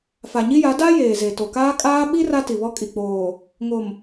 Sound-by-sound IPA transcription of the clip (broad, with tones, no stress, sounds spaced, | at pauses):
f a˨ ɲ i˦ j a˨˦ d a˦ j eː˨ z e˨ t o˨ k aː˦ kʼ aː˦ ɓ i˦ r a˦ t i˨ β ɔ˦ kʼ i˨ k͡p oː˨ | ŋ o˨ m